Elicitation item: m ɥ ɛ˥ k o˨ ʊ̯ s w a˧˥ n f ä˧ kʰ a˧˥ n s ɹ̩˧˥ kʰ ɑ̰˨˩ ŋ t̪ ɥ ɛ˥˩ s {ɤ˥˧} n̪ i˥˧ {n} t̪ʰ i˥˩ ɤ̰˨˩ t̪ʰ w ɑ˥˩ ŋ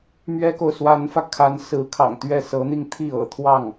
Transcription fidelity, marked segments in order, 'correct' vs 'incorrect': incorrect: ɤ˧˥, incorrect: ŋ

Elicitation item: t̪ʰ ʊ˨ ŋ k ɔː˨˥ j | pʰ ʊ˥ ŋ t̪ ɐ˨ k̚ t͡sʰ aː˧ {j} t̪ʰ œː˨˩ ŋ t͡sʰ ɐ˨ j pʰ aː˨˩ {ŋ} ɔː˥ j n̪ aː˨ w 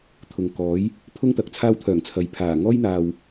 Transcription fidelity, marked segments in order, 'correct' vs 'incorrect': incorrect: w, correct

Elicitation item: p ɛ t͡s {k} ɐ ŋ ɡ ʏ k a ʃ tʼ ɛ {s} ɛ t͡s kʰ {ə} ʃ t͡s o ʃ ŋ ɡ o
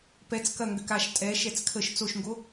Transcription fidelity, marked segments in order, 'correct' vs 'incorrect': correct, incorrect: ʃ, correct

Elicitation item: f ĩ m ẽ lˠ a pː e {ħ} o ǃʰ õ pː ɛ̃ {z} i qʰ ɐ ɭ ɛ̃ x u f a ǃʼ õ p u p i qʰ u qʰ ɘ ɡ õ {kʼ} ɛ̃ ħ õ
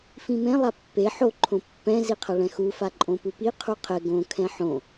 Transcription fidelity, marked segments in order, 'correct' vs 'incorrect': correct, correct, incorrect: kʰ

